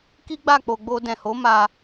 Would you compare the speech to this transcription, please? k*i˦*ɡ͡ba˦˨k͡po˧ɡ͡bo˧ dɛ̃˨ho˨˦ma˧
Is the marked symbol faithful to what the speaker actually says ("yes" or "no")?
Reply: yes